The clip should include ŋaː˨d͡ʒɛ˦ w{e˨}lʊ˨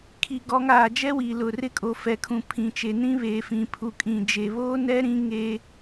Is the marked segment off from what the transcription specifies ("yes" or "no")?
yes